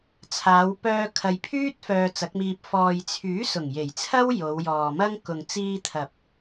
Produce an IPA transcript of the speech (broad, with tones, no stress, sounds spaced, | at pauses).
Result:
t͡sʰ aː˨˧ w p œː˧ kʰ ɐ˨ j pʰ yː˥ t̚ f œː˧ t͡s ɐ˨˥ k̚ m iː˧ p̚ f ɔː˨ j t͡sʰ yː˨˥ s ʊ˨˩ ŋ j e˨˩ j t͡sʰ ɐ˥ w j o˨˧ w j ɔː˨ m ɐ˥ ŋ k ʊ˨ ŋ t͡s iː˧ t̪ʰ ɐ˨ p̚